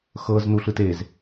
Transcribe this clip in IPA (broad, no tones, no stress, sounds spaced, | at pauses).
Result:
x ɤ z n u ɬ ɯ t e z